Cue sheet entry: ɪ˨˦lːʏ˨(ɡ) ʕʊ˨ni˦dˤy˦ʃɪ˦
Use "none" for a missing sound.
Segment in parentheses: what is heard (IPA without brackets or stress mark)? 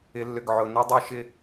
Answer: ɡ